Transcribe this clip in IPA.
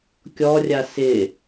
kʲɔrʲa sɪ

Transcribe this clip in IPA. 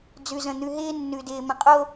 d͡zʉ˨zə̃˨ n̪ʉ˨ɦɪː˦nːʉ˨ dɪː˨mə̃˨qʼo˦

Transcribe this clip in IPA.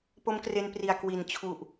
po˦˥mkre˧npri˨˩a̯ kwi˨˩nt͡ɕʰu˨˩ʔ

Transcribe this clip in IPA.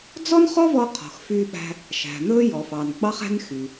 d͡zɔ˥nχɔ˥vɔ˧ qʰɔ̤˩xfyː˧ɓæ̤˧ | ʃæ̤˩n̪ɵː˥ jɔ˩fɑ˩n ɡ͡bɑ˧χæ̤˧n xy˩

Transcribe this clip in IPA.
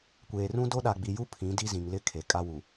kʷeː˨rũ˦ do˦ɗa˨ɡ͡bi˨ju˦ pʰĩ˨˦di˦zĩ˨ŋlɪ˦ kʰe˨kʼa˦wu˨

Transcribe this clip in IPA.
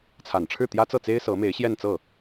t͡sʰa˨˩nʈ͡ʂʰɻ̩˥˩t̪jä˥ t͡sɤ˥˩t͡se˥ɪ̯ sɤ˧˥me˧˥ɪ̯ɕjɛ˥˧nt͡sɤ˥˩

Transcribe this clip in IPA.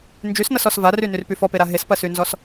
nd͡ʒysnʌsɔs varynyrpy fɔpeɾa ɦespɐsynzɔs

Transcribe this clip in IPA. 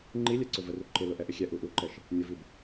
ŋ͡ǃi lʲɛǀʊvəru ǃɪlʊ ʔɛʔɪxʲɛ ʔuʔuǃɛʃ | nʲʊvib

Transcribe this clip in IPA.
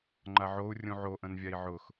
ŋ͡ǃaʕou̯ rʲũʕoʔə̃nvʲai̯ ʕʊx

